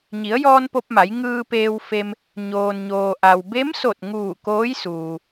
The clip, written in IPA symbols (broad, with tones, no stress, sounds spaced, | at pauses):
ɲ i˩˧ ə̯ j ɔː˧ n p o˧ p̚ m a˩˧ j ŋ ɯː˧ p eː˧ w f e˧ m | ɲ oː˩ n ɲ oː˩ ʔ a˩ w b e˧˥ m s o˧˩ t̚ ŋ uː˧˩ k oː˧˥ j s uː˩